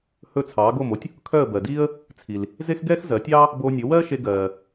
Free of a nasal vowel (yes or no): yes